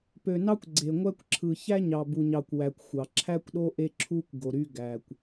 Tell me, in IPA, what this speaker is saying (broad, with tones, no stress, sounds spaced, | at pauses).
p ø˨ n ɑ˦ kʷ ɡ͡ǀ e˨ ŋʷ æ˦ kʷ ǁʰ ɯ˨ ç æ˦ ɲ ɑ˨ b u˨ ɲ ɑ˨ kʷ w æ˨ kʷ xʷ ɑ˨ ǁʰ æ˦ kʷ ɗ o˦ ʔ e˦ ǁʰ u˦ kʷ ɡ o˨ ɾ y˦ ɡ æ˨ kʷ